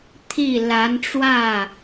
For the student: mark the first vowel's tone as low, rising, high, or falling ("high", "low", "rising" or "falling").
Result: falling